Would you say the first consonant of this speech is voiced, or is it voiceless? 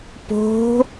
voiceless